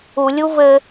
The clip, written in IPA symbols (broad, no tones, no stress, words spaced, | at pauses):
ulʲu vɘ